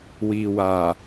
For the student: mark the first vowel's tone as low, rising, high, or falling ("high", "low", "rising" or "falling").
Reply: low